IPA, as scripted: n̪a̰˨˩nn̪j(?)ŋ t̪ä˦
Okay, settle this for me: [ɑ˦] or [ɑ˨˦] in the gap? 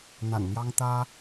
ɑ˦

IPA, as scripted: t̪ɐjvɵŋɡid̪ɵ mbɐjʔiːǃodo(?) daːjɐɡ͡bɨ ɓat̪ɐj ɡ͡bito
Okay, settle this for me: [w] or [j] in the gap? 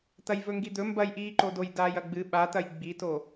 j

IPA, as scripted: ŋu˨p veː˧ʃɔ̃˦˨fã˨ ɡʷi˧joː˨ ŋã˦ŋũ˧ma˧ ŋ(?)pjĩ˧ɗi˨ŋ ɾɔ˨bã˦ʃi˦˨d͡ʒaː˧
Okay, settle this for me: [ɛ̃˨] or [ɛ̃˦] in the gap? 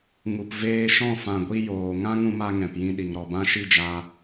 ɛ̃˨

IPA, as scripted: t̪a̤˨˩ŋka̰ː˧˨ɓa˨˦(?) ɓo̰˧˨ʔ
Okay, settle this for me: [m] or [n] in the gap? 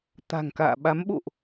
m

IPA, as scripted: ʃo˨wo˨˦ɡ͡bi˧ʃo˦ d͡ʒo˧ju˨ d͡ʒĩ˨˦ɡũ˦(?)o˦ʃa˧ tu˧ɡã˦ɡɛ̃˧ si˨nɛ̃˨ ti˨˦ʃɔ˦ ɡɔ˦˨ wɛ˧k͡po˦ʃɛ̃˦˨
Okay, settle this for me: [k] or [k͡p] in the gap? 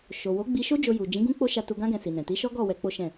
k͡p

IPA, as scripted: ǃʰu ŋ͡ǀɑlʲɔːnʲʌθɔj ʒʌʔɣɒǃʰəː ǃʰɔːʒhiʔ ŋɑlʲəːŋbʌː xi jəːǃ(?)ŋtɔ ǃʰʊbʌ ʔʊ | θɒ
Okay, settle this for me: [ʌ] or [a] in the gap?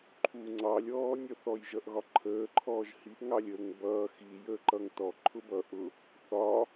ʌ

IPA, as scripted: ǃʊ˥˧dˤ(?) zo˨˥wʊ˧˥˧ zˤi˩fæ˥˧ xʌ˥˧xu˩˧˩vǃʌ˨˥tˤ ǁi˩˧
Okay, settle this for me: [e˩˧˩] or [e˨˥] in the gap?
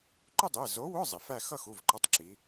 e˩˧˩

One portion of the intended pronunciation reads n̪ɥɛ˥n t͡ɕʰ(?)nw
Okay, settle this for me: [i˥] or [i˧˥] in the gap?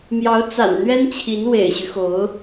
i˧˥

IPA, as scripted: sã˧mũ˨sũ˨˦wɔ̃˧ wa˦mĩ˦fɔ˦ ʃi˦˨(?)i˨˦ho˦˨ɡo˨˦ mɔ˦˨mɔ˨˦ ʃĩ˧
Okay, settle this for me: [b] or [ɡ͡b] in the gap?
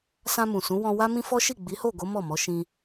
ɡ͡b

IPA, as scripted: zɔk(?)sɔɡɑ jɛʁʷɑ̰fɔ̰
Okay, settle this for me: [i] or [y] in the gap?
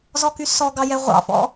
y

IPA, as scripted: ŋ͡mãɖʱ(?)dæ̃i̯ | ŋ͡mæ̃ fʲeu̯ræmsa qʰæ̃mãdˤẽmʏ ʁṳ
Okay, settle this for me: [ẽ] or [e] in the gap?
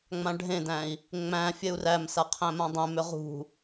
ẽ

